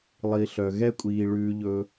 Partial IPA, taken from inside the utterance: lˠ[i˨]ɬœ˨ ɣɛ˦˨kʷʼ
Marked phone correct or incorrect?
correct